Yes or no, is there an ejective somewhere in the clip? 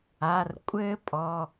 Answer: yes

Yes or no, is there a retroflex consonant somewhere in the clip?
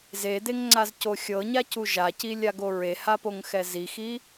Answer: no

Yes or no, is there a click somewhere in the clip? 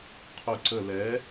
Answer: yes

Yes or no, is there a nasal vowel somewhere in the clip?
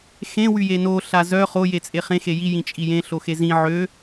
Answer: yes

